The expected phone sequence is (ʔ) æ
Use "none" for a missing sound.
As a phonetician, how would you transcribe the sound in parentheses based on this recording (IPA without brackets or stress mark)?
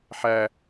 ħ